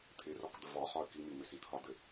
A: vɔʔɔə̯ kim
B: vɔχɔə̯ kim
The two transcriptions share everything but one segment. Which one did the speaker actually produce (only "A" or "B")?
B